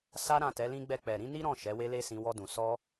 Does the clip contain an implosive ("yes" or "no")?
no